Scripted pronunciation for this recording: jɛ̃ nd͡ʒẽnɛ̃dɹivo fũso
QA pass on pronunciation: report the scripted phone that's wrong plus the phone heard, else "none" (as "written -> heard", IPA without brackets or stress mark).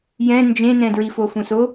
v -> f